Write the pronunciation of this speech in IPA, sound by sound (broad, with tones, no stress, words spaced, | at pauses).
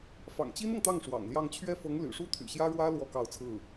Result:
fɑ̰˨˩ŋt͡ɕi˥nɤ˨ŋt̪ɑ˥˩ŋ ʂwɑ̰˨˩ŋljɑ˥˧ŋ t͡ɕʰɥɛ˥˩fɤ˧˥ŋ ly̰˨˩ʂu˥t̪ʰy̰˨˩ɕjä˥ ɻwä˥ lwɔ˥kɑ˥˧ʊ̯ t͡sʰɹ̩˥˩